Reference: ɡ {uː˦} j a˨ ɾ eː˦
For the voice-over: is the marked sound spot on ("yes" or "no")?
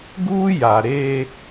yes